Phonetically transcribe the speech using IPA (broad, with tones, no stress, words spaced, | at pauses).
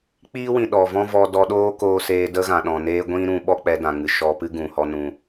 k͡piː˦wĩ˨ ɗɔ˨vɔ̃˦vɔ˧ dɔ˧ɗoː˦koː˧ seː˧də˦ɣã˨ ɗɔ̃˨neː˦ ɡʷĩ˦ɾũ˧ ɓɔ˦k͡pɛ˧dã˨ŋɨ˨ ʃɔ˧pɨ˦ɡũ˨hɔ˧ nũ˨